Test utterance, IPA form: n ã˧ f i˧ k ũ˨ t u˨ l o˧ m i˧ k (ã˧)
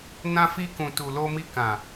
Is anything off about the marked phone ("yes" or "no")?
yes